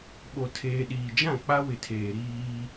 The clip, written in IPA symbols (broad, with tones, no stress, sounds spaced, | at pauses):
ɓ o˨ tʰ eː˨ ɗ iː˨ d͡ʒ ã˦˨ k͡p a˦ w ɪ˨ tʰ eː˨ ɾ iː˦